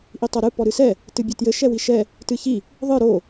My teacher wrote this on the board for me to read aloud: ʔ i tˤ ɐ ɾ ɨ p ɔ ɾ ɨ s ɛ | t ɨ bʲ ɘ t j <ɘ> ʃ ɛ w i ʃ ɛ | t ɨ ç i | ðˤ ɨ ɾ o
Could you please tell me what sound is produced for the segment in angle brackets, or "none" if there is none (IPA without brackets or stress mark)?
ɘ